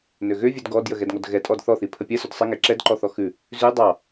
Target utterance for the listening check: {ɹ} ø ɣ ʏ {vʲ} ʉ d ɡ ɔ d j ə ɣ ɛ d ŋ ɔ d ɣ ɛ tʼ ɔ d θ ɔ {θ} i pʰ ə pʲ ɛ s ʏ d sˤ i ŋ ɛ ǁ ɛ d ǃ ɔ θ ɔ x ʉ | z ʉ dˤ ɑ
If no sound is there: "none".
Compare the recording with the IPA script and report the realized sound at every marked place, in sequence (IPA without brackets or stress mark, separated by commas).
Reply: n, vʲ, θ